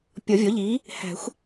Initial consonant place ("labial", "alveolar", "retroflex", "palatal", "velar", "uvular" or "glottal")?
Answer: labial